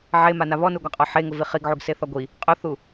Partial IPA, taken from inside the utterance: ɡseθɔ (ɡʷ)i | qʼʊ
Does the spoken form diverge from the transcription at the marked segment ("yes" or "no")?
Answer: no